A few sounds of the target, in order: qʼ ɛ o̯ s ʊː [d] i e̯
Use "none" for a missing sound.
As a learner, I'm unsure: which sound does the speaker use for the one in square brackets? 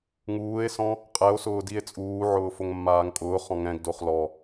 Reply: d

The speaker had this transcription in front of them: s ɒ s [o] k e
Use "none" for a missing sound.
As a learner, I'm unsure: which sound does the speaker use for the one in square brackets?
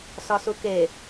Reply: u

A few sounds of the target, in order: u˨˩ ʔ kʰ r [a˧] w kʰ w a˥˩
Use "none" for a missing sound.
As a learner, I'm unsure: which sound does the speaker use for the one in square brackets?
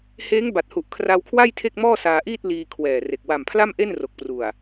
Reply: a˧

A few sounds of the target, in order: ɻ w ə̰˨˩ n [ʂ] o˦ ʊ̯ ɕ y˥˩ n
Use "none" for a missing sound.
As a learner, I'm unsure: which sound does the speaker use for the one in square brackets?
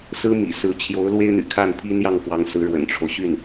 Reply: ʈ͡ʂʰ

